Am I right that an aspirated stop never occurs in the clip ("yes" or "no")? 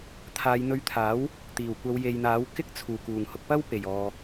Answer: no